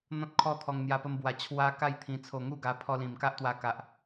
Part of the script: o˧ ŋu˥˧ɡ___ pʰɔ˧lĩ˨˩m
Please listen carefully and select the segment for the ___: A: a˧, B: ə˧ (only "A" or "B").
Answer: A